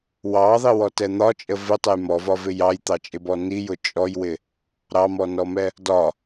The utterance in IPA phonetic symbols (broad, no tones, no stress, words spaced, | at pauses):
wɑðˤiwɔtɛ n̪ɒt͡ʃʼə vɪtˤəj mɔvɒvɪ jɑjt̪ɑt͡ʃʼɪbɔ nijʊ t͡ʃʼɔjwɪ | ɾɑmɔnɔmɛ | dɒ